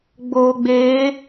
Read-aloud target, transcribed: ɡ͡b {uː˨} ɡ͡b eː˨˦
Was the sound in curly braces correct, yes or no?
no